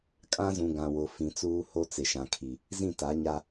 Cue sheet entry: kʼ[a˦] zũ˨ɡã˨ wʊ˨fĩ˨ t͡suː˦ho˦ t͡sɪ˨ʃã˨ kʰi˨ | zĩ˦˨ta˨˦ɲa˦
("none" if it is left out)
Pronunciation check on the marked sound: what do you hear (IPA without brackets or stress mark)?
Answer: ã˦